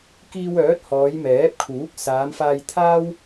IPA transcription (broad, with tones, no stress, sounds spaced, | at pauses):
k iː˧ w œː˨˥ t̚ h ɔː˨˧ j m ɛː˨˥ p̚ kʰ uː˨˥ k̚ s aː˨˧ m f aː˧ j t̪ʰ aː˥ w